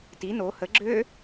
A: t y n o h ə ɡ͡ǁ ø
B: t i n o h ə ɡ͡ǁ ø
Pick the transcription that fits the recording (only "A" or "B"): B